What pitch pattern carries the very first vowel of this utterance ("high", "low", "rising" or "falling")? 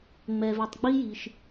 low